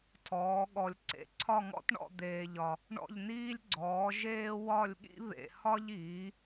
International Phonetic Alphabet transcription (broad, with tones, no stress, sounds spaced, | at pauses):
tʰ ɔː˨˥ ɠ ɔ˧ lʲ ǀ ḛ˨˥ ǀʰ ɒ˥˧ ŋ ɔ̰˥ t ɳ ɔ̰˥˧ d̪ eː˧ ʎ ɒ˧ | ɳ ɔ̰˥˧ ʎ n iː˥ lʲ ɡ͡ǀ ɔː˨˥ ʒ eː˥ w ɒ˥˧ lʲ ɠ ḭ˥ β ḛ˧ h ɒ˥ ʎ iː˨˥